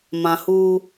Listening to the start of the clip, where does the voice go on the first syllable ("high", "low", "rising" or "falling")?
low